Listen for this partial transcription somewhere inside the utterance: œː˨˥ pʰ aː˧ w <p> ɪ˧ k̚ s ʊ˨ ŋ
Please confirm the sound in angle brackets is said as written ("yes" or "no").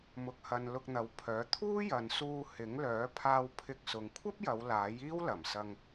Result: no